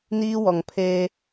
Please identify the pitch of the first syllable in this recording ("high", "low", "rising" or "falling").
high